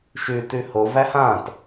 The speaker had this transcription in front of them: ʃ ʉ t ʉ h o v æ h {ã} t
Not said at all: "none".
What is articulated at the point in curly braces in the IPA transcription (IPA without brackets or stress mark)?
ã